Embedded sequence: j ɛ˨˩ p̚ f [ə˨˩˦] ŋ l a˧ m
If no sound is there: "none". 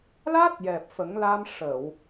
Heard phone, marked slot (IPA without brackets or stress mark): ə˨˩˦